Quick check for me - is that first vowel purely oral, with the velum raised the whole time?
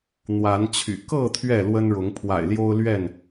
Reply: yes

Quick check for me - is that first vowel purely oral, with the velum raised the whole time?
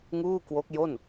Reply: yes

